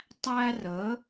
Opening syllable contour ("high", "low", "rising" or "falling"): high